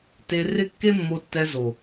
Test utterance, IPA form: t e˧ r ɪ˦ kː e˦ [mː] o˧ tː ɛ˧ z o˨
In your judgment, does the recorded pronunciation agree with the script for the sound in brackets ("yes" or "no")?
yes